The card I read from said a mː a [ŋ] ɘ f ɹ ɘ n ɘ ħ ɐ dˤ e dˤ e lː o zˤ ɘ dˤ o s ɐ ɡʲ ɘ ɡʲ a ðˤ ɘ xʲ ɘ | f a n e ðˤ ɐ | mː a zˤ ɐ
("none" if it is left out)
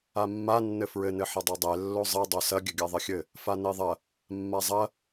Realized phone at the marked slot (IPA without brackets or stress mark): nː